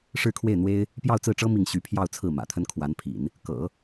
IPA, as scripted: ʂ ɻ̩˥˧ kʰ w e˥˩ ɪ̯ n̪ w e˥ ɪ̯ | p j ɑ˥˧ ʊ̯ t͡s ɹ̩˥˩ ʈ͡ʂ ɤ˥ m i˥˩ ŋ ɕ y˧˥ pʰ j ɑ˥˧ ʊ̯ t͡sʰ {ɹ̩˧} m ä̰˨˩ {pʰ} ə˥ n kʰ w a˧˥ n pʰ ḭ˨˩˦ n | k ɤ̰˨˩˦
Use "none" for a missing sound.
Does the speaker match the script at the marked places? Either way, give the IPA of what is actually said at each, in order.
ɹ̩˥˩, t̪ʰ

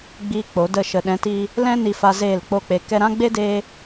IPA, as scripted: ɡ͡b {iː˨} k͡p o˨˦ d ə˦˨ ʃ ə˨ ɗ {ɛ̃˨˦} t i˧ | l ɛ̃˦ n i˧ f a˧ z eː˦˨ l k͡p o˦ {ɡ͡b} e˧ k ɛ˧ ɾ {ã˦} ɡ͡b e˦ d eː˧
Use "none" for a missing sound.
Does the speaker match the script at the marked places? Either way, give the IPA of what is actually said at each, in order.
iː˧, ɛ̃˨˦, k͡p, ã˦

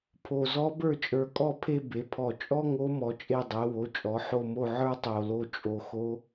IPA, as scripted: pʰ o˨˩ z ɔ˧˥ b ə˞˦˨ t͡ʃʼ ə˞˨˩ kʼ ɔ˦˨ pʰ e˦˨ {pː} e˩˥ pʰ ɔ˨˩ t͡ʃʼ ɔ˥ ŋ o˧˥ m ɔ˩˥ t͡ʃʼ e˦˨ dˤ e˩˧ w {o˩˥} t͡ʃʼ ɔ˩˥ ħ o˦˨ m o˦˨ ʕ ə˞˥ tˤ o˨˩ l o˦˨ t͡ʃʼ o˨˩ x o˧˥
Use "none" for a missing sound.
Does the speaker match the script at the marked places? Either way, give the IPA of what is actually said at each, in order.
b, o˩˥

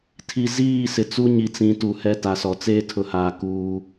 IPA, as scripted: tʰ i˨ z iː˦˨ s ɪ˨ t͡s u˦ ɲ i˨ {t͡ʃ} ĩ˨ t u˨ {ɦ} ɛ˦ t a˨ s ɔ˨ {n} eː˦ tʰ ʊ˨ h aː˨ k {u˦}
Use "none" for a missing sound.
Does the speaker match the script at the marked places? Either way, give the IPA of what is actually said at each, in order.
t͡s, h, t͡s, uː˦

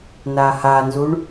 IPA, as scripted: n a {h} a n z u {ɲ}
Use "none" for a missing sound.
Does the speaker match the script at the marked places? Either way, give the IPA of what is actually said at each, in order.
h, ɳ

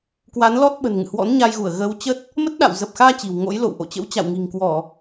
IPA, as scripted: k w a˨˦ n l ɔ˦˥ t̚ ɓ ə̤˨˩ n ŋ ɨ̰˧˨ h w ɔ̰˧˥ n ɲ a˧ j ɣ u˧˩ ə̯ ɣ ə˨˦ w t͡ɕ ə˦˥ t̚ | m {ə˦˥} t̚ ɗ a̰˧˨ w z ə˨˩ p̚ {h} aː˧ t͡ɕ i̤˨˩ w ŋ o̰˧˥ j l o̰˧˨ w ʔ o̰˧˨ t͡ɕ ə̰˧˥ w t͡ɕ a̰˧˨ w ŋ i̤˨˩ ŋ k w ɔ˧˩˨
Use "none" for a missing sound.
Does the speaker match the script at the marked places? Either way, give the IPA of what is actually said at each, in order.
ə˦˥, x

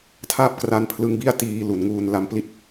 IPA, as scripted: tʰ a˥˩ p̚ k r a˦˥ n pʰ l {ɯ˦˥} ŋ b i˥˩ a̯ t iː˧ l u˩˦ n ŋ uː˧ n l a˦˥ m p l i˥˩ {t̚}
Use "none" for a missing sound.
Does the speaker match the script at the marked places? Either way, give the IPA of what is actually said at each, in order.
ɯ˧, t̚

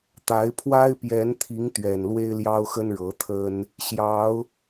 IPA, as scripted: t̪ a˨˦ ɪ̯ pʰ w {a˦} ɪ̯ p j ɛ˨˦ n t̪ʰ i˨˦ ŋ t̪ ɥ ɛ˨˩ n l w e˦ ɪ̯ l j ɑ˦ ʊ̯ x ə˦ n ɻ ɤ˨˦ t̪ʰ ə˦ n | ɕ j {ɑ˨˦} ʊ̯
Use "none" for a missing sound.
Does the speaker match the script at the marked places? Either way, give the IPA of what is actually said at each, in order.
a˦, ɑ˨˦

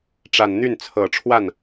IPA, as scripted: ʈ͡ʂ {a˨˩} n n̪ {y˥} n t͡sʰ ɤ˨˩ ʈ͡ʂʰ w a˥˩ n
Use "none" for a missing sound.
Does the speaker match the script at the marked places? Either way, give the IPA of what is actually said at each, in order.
a˨˩, y˥˩

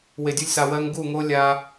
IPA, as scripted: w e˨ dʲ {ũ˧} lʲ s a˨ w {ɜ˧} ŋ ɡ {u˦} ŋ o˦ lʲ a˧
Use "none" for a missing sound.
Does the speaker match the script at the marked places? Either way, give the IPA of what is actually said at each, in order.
u˧, ɜ˧, u˦˨

